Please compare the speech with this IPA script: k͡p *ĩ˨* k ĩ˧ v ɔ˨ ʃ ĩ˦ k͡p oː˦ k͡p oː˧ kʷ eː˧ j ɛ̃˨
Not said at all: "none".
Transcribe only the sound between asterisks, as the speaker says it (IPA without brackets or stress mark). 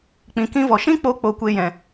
ĩ˨